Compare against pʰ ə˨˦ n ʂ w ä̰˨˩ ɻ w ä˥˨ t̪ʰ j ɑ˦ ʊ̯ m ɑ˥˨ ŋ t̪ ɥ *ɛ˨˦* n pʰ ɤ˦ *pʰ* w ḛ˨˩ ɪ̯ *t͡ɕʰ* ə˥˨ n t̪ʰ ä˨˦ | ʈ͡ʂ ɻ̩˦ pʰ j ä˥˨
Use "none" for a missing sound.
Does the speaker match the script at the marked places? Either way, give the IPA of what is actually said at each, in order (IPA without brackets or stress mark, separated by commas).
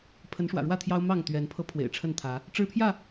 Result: ɛ˨˦, pʰ, ʈ͡ʂʰ